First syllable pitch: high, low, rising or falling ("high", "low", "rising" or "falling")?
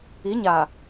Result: rising